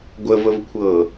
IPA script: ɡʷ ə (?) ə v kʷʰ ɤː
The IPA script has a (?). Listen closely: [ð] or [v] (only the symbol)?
v